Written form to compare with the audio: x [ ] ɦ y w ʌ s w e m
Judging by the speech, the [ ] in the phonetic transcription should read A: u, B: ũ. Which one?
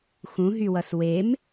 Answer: B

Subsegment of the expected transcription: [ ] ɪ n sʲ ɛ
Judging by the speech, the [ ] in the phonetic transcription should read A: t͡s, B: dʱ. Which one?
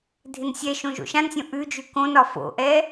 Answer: B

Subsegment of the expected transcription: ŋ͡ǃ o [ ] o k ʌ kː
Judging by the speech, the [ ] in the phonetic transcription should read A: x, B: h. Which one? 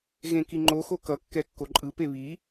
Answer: A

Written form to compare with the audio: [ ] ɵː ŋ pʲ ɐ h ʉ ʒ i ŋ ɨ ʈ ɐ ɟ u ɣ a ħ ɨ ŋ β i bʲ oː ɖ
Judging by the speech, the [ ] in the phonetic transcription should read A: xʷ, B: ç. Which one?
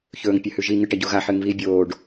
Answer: B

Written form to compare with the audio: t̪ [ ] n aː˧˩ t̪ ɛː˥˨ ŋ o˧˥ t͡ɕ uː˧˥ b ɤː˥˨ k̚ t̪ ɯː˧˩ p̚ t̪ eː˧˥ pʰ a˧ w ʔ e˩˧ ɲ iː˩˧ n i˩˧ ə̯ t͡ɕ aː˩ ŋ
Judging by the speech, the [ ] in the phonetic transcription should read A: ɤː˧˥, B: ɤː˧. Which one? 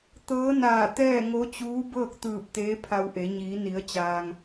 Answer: A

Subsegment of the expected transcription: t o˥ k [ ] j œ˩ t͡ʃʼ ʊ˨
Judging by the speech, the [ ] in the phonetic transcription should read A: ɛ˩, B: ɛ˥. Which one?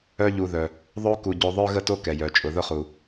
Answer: A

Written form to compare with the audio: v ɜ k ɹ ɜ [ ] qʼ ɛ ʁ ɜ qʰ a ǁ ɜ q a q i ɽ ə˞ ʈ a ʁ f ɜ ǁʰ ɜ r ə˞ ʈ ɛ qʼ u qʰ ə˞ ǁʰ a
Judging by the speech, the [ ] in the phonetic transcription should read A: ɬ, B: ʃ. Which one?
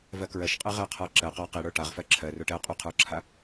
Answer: B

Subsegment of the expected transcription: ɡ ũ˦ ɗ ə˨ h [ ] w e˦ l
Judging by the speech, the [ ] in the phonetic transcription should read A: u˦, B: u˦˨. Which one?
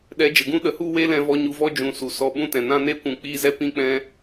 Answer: B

